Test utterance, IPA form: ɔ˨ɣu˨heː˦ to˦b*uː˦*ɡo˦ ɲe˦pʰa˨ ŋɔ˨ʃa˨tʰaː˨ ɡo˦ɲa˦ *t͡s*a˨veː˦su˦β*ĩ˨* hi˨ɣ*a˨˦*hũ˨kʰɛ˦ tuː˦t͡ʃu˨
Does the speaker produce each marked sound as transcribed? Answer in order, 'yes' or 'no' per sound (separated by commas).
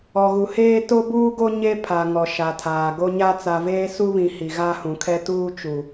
yes, yes, yes, no